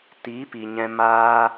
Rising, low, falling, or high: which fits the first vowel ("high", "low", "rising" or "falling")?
rising